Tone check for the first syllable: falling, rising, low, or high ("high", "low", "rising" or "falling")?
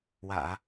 low